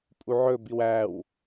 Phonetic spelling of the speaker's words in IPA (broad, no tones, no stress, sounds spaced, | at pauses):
pʼ u ʕ ɵ b i w æ w